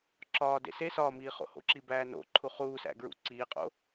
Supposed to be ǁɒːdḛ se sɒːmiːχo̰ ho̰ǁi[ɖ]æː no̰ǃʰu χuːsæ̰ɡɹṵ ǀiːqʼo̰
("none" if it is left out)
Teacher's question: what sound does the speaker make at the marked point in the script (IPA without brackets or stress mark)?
b